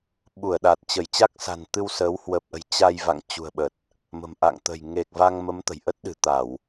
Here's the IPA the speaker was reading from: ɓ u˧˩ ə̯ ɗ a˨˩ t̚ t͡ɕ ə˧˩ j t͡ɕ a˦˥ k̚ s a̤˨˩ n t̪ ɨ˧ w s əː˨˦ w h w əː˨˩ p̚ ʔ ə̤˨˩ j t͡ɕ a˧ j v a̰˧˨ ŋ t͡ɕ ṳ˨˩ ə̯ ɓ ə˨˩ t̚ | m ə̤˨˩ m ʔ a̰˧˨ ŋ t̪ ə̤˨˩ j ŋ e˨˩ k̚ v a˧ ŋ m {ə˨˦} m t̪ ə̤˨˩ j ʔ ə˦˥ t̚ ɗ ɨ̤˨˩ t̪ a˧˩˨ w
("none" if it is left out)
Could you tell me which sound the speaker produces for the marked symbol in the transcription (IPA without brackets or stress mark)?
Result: ə˨˦